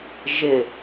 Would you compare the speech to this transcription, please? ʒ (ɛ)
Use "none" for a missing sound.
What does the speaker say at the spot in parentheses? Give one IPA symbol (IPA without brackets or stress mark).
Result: ɪ